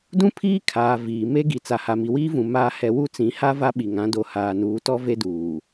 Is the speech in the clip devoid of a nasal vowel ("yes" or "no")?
no